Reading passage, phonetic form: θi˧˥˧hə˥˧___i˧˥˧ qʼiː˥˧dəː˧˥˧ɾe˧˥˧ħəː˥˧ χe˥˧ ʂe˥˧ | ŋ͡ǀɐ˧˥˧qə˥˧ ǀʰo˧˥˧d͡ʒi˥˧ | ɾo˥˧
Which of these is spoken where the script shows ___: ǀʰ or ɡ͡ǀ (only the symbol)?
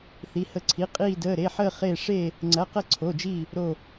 ǀʰ